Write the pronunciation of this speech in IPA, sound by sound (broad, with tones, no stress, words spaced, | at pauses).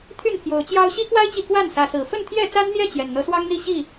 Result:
t̪ʰy˥˨npʰjo˨˦ʊ̯t͡ɕjɑ˦ʊ̯ ɕi˦kwa˦ɪ̯t͡ɕi˨ kwa˥˨nsä˨˦sɹ̩˨˩ fə˥˨nt̪ʰjɛ˥˨t͡sa˦nn̪jɛ˥˨ t͡ɕjɛ˨˩nn̪ɤ˨˦swɑ˦ŋn̪i˥˨ ɕi˥˨